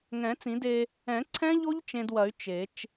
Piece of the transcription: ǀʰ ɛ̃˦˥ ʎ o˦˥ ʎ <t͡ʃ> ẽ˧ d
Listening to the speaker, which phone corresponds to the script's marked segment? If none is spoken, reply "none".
t͡ʃ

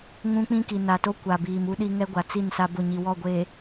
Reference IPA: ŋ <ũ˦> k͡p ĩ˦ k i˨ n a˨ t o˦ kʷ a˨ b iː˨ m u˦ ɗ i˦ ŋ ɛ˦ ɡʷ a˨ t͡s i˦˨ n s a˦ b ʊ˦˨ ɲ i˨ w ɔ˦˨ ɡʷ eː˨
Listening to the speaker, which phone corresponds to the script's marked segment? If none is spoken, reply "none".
ũ˦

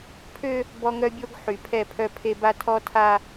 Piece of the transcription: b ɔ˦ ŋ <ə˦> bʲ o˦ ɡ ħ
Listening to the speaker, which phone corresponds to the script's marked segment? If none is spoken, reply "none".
œ˦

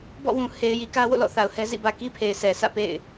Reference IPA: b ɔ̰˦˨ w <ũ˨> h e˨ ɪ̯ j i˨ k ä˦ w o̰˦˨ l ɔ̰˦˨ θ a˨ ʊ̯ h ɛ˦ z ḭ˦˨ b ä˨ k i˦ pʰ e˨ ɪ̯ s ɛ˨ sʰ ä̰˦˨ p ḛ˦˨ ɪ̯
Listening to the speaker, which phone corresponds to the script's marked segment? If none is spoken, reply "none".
ũ˨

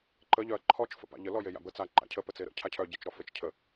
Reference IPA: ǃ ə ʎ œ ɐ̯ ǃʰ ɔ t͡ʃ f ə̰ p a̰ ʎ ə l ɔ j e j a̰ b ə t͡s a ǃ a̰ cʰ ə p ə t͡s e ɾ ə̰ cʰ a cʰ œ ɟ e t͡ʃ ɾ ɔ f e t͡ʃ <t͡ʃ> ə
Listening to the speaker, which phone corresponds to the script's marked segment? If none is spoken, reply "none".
cʰ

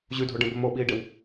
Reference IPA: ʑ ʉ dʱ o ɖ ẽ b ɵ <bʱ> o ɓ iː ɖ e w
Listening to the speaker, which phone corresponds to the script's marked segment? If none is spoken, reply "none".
m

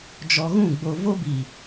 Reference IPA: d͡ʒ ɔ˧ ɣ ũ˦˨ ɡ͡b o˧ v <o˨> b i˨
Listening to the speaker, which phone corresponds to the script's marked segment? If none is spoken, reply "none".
o˦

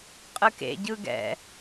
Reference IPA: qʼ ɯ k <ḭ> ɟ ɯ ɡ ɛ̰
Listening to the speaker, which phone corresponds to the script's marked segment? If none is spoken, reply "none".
ḛ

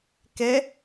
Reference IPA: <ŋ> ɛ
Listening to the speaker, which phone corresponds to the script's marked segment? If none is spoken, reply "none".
k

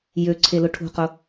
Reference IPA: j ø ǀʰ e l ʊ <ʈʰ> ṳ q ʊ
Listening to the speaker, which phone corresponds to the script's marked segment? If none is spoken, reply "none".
ʈʰ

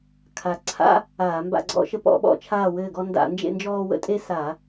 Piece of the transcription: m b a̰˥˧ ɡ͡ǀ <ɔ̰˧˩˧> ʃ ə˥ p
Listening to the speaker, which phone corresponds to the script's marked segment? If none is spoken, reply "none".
ɔ̰˥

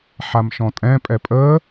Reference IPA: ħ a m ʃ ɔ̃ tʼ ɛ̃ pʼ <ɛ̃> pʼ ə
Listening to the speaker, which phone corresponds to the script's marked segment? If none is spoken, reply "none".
ɛ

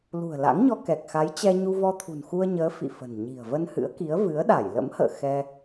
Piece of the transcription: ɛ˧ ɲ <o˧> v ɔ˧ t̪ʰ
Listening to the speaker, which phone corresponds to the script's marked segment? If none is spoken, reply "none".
u˧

